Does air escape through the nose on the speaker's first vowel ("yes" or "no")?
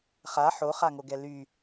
no